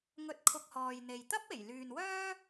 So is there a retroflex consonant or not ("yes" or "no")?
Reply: no